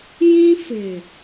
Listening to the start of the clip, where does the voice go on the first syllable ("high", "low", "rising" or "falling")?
high